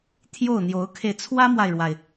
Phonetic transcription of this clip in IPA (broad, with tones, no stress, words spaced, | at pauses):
t̪ʰjo˥˩ʊ̯n̪jo˧˥ʊ̯kʰe˧ɪ̯ t͡sʰwä˥mwa˨ɪ̯ɻwa˩ɪ̯